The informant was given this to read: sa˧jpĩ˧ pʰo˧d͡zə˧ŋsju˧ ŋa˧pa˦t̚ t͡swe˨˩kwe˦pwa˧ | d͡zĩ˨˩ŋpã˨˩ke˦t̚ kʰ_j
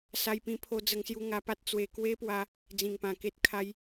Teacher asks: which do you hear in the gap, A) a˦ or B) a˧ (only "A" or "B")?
A